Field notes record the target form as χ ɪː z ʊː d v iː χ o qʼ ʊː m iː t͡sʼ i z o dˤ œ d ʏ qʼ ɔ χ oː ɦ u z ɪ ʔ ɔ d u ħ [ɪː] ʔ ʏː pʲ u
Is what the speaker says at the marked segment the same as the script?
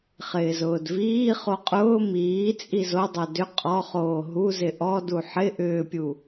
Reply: no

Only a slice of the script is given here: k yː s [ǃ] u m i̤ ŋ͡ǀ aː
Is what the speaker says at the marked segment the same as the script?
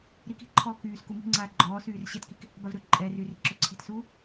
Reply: no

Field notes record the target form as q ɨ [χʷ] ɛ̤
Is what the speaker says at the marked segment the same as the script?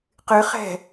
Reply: no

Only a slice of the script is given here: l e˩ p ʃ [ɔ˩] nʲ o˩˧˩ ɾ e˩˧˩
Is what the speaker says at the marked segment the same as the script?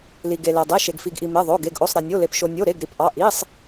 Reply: no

